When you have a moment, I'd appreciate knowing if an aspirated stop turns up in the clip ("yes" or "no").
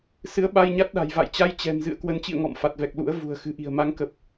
no